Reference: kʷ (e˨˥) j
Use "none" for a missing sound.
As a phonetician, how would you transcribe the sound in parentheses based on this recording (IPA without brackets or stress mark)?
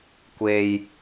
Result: e˨